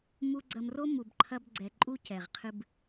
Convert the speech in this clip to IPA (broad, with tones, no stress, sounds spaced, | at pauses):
m u˦ ɡ͡ǀ ɐ˧ m r o˦ m u˧ b ǃʰ ɐ˦ b ɡ͡ǀ ɛ˧ ǃʼ u˧ c ɛ˨ ʁ qʰ ɨ˧ b